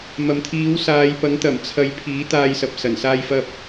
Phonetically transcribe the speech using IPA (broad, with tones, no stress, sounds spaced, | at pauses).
m ɐ˨ m t̪ʰ iː˨˥ w s aː˨˧ j p ɐ˨˥ ŋ t̪ ɐ˨˩ m t͡sʰ ɐ˧ j pʰ iː˨˥ t̪ aː˥ j s ɐ˧ p̚ s ɐ˨˩ n s aː˥ j f ɐ˥ p̚